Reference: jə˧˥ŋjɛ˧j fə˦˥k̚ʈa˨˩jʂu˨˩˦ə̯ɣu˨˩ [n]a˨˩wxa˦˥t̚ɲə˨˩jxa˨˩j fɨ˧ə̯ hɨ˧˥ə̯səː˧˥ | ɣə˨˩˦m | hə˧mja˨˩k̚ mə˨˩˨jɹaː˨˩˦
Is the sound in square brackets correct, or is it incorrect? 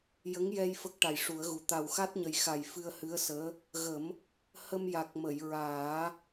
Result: incorrect